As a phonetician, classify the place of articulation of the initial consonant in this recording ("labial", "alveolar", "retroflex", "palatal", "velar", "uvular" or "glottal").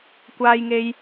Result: velar